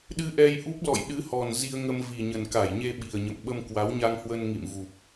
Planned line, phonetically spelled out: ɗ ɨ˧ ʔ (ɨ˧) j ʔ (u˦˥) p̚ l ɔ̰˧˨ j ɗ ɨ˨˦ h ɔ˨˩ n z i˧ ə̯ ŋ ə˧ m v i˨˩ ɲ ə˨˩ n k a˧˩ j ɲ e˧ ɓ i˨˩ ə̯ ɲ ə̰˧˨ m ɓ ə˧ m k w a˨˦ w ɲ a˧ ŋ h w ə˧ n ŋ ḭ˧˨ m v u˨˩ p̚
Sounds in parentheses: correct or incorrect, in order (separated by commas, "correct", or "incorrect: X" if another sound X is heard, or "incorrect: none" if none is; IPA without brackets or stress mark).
incorrect: ɛ˧, correct